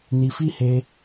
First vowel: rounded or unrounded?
unrounded